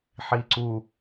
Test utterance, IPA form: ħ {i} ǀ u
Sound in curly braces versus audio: correct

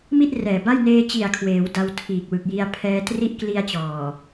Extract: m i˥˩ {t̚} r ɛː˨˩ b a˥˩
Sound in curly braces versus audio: correct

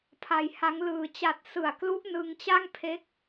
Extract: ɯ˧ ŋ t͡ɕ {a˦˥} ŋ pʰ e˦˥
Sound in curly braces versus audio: incorrect: a˥˩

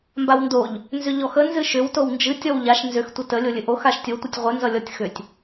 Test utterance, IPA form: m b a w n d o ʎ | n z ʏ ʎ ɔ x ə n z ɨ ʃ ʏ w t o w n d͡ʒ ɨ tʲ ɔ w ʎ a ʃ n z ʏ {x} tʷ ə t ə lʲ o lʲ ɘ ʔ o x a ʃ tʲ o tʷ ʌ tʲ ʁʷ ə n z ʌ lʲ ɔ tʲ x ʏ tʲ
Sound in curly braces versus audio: correct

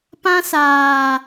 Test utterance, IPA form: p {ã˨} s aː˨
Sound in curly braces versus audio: incorrect: ã˦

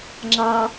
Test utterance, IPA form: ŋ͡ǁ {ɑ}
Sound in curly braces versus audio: correct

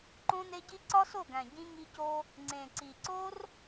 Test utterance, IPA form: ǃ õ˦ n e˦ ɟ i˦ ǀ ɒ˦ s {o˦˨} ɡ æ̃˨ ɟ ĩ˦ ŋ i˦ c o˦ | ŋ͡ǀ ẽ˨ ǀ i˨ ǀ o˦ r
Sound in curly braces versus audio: correct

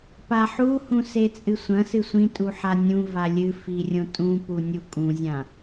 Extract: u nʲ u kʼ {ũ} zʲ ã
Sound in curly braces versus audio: correct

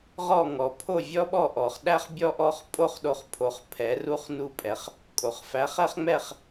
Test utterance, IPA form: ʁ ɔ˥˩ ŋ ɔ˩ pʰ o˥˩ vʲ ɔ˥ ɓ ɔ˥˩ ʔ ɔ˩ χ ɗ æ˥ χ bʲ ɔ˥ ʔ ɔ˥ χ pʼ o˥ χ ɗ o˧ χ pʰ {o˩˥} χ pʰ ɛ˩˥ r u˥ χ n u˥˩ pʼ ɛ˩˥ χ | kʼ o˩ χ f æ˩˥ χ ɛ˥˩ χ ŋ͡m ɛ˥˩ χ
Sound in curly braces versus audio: correct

